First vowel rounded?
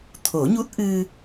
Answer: yes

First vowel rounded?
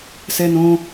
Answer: no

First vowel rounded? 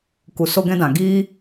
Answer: yes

